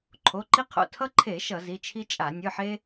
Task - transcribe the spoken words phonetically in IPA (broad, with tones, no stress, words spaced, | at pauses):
ǃʰo˩˧˩ǃi˦qʰo̰˩˧˩ tʰʌ˦ǃʰe˧˩˧ ʃʌ˧˩˧zi˩˧˩t͡ʃʰi˦t͡ʃʼa˧˩˧ nʲɯ˩˧˩ħe˦